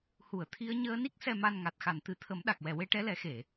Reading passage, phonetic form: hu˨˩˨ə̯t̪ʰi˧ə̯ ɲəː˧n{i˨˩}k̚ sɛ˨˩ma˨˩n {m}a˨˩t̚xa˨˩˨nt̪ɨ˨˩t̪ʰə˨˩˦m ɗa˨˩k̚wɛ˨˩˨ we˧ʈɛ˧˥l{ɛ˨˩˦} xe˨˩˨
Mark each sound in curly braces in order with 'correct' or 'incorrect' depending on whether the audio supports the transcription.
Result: incorrect, incorrect, correct

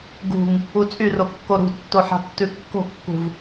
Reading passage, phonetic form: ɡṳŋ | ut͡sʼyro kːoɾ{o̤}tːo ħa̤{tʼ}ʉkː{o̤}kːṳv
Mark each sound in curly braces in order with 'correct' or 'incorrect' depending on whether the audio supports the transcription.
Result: incorrect, incorrect, correct

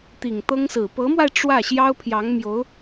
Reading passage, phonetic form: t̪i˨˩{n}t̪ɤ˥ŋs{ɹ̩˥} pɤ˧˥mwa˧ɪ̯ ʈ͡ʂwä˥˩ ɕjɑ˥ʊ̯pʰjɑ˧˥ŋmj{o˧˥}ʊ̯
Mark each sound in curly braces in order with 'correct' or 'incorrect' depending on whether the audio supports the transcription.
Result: incorrect, incorrect, correct

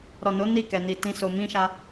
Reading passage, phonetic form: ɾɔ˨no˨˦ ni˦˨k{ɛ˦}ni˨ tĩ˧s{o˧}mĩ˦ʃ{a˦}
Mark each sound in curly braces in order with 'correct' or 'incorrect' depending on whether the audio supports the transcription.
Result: incorrect, correct, correct

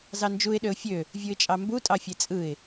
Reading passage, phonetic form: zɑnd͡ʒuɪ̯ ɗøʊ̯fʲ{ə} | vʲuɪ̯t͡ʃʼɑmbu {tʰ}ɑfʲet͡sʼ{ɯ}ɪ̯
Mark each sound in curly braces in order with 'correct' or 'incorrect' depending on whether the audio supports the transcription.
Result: incorrect, incorrect, correct

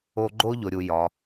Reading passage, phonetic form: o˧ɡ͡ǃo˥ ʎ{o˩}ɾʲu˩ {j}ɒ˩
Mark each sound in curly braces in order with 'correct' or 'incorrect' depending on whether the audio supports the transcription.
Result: correct, correct

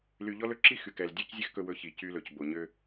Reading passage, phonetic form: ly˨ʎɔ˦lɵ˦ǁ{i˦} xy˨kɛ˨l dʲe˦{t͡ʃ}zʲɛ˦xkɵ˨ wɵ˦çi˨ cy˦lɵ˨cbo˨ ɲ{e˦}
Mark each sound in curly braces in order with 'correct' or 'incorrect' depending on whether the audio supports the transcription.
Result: correct, incorrect, incorrect

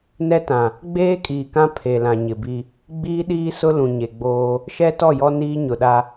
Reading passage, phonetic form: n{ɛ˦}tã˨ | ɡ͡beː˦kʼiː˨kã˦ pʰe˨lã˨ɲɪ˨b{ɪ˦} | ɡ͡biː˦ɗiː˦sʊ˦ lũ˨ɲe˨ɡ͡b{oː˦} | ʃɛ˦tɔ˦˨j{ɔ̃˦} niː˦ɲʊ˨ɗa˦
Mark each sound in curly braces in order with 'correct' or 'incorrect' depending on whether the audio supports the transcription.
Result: correct, incorrect, correct, incorrect

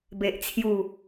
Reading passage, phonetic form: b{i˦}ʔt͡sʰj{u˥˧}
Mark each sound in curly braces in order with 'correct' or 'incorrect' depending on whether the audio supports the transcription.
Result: incorrect, correct

